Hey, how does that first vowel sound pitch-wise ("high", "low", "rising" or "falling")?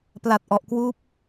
low